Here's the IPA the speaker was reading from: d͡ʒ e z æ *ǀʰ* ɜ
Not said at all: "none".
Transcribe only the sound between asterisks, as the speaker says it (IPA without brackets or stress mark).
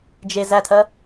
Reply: tʰ